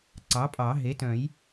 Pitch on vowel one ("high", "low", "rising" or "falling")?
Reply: rising